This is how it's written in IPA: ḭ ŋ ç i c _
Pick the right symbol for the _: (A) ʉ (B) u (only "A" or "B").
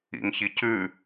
A